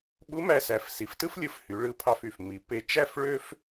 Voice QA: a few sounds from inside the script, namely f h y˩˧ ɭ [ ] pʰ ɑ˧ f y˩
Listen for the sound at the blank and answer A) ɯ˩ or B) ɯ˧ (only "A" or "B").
B